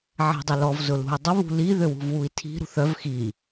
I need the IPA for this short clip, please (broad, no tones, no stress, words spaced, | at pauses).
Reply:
ʕɛ̤dˤɪlɔv zʊlṳy̯dˤʊ βṳli ðøwṳvwui̯tʰi̤ ɾṳθœv xi